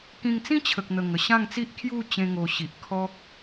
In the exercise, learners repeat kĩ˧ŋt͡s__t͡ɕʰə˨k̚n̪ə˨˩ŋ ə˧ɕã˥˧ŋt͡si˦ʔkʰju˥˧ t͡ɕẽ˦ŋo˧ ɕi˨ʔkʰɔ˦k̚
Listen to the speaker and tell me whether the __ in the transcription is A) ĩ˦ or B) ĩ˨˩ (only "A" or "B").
A